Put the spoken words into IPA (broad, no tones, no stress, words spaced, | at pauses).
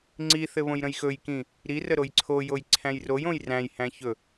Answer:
ŋ͡ǀiθɘ βõjɾə̃jxɵjkĩ | ɾi rəɾojǀʰojoj ǀʰæ̃jrojõj ræ̃jhæ̃ çɵ